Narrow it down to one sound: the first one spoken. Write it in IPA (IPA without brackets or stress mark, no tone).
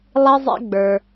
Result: lˠ